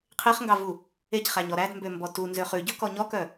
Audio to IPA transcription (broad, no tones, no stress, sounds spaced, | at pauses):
qʰ e χ ŋ ɡ ɑ v u | e c χ æ ɲ ɔ ɾ æ d m b ø m b ɔ t u n z ø χ ʉ ɟ ɵ k ɔ ɲ ɔ k œ